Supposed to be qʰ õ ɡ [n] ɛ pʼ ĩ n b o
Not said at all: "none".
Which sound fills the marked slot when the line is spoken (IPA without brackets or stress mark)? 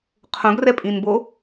r